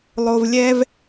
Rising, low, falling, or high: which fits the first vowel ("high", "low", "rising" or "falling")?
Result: low